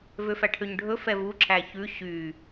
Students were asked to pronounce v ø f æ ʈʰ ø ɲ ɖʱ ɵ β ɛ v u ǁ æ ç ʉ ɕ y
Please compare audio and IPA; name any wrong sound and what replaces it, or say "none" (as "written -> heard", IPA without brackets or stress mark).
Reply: β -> f